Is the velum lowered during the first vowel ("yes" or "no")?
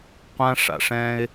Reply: yes